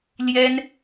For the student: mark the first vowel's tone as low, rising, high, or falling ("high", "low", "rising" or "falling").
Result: high